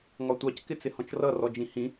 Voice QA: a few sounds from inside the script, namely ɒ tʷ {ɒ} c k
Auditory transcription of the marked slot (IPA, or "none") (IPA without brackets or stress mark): ɑ